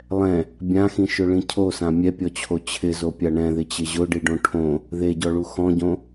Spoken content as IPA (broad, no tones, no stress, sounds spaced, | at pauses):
lˠ ɛ̃ | bʲ ã x ĩ ʃ ʊ ɭ ĩ cʰ o s ã mʲ ɛ pʲ ɔ t͡ɕʰ o t͡ɕʰ ɪ z o pʲ a ɳ ɛ̃ ð ɪ t͡ɕ ɪ ʑ ʊ ɖ i ɖ õ ʈʰ õ | ð e ɟ ɔ ɭ u x ɔ̃ ɟ õ